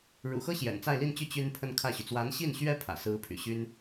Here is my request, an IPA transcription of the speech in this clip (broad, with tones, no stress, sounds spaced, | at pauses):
ɻ ṵ˨˩ x ɤ˥ ɕ j ɛ̰˨˩ n t͡s a˥˧ ɪ̯ l i˥˧ n t͡ɕ y˥˩ t͡ɕ y˥ n pʰ ə˥˧ n kʰ ä˥˩ ɕ y˩ t͡s w a˧˥ n ɕ i˥˩ n ɕ ɥ ɛ˥ pʰ ä̰˨˩ s ɹ̩˥ pʰ y̰˨˩ ɕ y˥ n